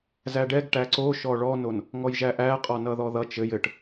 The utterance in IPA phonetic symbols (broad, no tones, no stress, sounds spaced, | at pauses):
z æ ɖ ɛ ɡ ʈ æ ǀ o ʃ ɔ ɭ ɔ n o n | ŋ ɔ j ʒ æ ʔ æ qʼ ɔ n ʌ ð ɔ ð ʌ t͡ʃ ɘ j ɘ ʈ